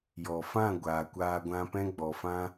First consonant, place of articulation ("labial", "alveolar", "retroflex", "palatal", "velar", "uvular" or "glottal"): palatal